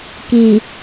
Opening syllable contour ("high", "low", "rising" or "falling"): low